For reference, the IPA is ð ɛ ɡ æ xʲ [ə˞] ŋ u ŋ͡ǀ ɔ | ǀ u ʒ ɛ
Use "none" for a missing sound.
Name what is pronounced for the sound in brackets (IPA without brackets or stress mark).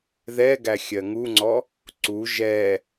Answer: ɜ